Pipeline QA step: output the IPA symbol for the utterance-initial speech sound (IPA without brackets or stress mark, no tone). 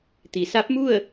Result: t̪